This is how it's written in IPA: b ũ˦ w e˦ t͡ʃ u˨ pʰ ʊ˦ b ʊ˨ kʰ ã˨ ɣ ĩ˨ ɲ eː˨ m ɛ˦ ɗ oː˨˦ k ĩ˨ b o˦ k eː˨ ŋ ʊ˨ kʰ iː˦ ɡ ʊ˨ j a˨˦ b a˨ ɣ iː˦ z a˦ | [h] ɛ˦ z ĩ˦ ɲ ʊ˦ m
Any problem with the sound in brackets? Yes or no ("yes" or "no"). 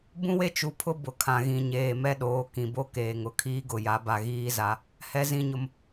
no